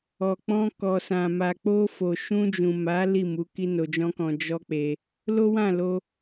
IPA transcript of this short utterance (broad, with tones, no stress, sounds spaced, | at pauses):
ɔ˨ k͡p ɔ̃˧ k ɔ˨ s ã˨ m a˨ k͡p o˧ f o˨ ʃ ũ˧ d͡ʒ ũ˨ m a˨˦ l i˦˨ m u˨˦ k i˦ n o˧ d͡ʒ ɔ̃˦ k ɔ̃˧ d͡ʒ ɔ˦ k͡p e˧ | l o˦ w ã˦˨ l o˧